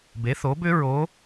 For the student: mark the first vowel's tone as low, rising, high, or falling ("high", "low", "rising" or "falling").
rising